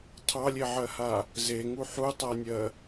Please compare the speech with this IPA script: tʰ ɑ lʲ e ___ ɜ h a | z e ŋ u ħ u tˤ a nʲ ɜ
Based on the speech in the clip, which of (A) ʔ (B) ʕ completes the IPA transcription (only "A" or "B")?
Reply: B